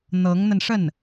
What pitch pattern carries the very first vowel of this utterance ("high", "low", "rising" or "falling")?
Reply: rising